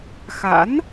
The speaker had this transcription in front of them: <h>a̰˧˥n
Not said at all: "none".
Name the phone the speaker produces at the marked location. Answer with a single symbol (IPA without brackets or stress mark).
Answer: x